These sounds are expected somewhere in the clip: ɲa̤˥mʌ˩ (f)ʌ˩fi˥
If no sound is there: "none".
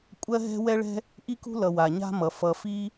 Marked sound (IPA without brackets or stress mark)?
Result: f